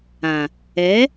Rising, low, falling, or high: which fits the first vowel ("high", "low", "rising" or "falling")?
low